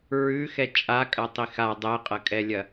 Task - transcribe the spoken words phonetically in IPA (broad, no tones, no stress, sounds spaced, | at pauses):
ɹ ʉ x ɛ t͡ʃʼ a kʼ ɐ tˤ i x a dˤ ɛ qʼ ɐ kʼ ɛ lʲ ɐ